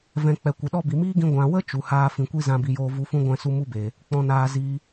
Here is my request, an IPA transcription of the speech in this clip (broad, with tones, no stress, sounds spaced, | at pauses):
v ɛ̃˨ k͡p ɛ˨ kʷ ə˨ ɗ ɔ˦ b i˨ m iː˦ ɡ ĩ˧ ɡʷ ã˨ w ə˦ t͡ʃ u˨ h aː˦ f ĩ˨ kʷ i˦ z ã˧ b i˧ j oː˦ v u˧ f ũ˦ ɡʷ ɛ̃˦˨ s u˦ m u˦ b eː˨ | k͡p ɔ̃˧ n aː˧ z iː˧